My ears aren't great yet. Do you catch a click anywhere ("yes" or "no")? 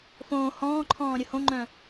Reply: yes